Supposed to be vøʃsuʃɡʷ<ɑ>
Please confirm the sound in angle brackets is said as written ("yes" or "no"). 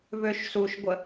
no